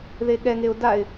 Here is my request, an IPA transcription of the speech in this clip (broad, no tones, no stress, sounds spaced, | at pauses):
ð e ɠ ɛ ŋ e ʊ̯ d a ɪ̯